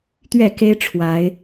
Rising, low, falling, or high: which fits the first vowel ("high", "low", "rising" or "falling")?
falling